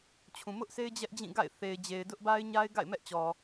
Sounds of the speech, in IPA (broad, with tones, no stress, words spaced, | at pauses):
t͡ɕʰũ˨mʊ˦ʔse˦ɪ̯ d͡ʑɛ˦ʔd͡ʑĩ˦˨ɡa̰˦˨ɪ̯ θe˨ɪ̯d͡ʑe˨ɪ̯ dʊ˦ʔba˦ɪ̯ɲa˦ɪ̯ ɡa̰˦˨ɪ̯mɛ˦ʔt͡ɕɔ˨